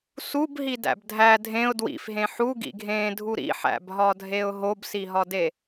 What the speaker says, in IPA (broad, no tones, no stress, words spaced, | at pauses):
subɦidæ̰b dʱæ dʱẽʊ̯ dwḭfɦẽ ħuɡḭɡʱẽːdʱu ɾḭħæ̰bɦɒdʱeʊ̯ ɦobsiɦɒde